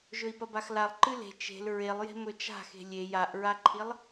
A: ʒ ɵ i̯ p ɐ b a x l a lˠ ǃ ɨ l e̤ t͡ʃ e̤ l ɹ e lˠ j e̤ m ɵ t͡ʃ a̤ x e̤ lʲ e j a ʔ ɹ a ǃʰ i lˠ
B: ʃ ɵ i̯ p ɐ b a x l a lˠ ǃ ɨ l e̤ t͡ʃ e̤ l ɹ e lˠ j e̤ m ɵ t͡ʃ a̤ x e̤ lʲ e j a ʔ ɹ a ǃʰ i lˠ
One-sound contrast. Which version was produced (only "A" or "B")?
A